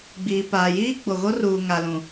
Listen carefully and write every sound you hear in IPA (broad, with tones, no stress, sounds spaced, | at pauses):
ɡ͡b iː˨ p aː˨ j iː˦ ɡ͡b o˨ ɣ o˦ r uː˨ ŋ a˨ l ũ˨